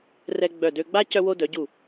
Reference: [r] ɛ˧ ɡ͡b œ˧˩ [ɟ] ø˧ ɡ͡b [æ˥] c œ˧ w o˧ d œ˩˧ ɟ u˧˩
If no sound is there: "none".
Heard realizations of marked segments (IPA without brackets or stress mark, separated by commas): r, d, a˥